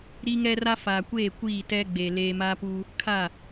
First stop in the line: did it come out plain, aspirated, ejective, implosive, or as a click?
plain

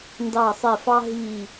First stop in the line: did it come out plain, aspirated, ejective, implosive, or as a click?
plain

